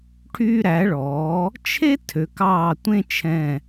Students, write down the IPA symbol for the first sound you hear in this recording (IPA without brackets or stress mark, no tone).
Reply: ʈʰ